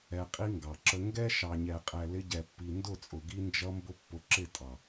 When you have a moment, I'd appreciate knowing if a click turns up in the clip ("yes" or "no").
yes